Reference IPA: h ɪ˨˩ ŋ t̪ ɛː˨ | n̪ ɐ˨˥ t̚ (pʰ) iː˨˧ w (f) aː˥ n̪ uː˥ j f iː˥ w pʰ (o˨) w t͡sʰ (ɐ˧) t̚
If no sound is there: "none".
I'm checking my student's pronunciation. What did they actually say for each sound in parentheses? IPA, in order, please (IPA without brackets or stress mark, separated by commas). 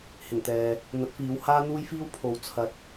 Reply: f, h, o˨, ɐ˨